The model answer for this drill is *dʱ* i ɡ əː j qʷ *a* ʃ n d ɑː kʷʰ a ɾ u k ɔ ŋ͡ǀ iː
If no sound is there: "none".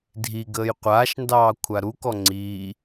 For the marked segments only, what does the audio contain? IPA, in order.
dʱ, aː

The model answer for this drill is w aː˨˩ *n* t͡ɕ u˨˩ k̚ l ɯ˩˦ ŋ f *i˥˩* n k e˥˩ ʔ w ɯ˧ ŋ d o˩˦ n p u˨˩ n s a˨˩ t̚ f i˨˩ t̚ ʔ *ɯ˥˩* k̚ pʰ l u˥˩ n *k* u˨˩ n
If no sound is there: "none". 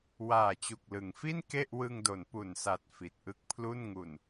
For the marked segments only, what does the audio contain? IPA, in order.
none, i˥˩, ɯ˥˩, ŋ

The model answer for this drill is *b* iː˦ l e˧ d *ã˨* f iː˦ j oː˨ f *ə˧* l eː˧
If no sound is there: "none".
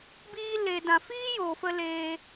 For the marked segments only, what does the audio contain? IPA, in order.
b, ã˨, ə˧

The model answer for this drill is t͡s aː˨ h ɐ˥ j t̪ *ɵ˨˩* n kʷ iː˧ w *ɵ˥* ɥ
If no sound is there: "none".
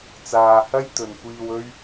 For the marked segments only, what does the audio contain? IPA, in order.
ɵ˨, ɵ˥

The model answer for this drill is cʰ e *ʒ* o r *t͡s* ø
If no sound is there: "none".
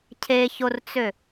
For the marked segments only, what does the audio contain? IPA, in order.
ç, t͡s

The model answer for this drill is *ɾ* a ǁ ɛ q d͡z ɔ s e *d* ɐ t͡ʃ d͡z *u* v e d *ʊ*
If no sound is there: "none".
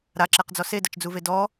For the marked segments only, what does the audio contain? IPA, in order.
ɾ, d, u, ɔ

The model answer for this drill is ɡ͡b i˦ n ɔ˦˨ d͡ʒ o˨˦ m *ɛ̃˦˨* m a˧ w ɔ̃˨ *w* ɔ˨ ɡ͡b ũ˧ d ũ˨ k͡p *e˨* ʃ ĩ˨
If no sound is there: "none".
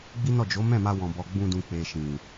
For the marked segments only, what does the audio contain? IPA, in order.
ɛ̃˦˨, b, e˨

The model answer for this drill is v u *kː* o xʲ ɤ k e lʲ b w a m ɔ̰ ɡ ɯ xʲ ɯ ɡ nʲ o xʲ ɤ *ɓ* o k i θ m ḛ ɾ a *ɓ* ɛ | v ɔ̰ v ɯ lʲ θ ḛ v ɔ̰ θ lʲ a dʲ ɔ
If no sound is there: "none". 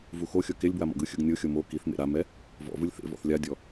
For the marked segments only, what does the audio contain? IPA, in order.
x, m, m

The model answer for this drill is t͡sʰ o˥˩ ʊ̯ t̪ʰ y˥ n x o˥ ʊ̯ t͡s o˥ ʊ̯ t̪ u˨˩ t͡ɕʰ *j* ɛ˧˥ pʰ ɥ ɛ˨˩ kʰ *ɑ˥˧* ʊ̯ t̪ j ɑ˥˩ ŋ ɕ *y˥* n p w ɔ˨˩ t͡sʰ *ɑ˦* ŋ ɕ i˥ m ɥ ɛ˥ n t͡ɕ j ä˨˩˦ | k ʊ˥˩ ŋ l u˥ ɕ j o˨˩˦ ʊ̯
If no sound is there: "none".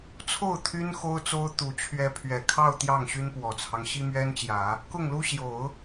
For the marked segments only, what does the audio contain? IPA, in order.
ɥ, ɑ˥˧, y˥, ɑ˦

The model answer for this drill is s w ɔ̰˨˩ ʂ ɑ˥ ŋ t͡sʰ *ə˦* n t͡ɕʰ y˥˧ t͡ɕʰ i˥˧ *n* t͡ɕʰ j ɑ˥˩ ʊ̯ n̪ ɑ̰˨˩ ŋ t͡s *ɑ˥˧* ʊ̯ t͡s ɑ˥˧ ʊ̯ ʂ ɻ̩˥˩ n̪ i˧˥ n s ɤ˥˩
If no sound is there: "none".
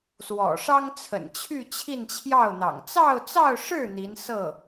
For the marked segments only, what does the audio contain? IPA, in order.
ə̰˨˩, n, ɑ˥˧

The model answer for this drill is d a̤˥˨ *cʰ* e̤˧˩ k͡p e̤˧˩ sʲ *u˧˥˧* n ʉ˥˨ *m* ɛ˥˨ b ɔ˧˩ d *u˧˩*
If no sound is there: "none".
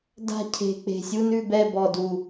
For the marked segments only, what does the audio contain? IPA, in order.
cʰ, u˧˥˧, b, u˧˩

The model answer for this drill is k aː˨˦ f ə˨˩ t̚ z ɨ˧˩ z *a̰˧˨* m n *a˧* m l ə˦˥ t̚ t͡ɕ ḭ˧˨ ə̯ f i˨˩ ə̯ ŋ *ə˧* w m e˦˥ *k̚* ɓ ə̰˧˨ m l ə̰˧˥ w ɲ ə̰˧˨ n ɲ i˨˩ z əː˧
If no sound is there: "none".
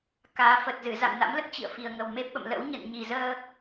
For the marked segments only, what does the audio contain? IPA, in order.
a̰˧˨, a̰˧˥, ə˨˩, p̚

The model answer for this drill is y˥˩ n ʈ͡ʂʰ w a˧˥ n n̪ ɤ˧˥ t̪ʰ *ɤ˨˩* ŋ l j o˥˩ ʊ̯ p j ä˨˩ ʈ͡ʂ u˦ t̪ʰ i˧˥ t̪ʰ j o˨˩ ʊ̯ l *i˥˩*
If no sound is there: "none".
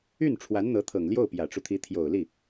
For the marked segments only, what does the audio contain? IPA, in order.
ɤ˨˩, i˥˩

